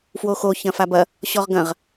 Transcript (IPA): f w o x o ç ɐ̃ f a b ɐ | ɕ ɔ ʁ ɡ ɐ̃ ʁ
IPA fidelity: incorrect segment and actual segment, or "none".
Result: none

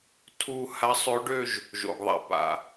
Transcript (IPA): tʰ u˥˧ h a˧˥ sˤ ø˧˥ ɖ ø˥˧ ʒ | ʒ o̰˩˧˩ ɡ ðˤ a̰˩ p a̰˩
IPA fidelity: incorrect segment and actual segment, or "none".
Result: none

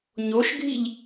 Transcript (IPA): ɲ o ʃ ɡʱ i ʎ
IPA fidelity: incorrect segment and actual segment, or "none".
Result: none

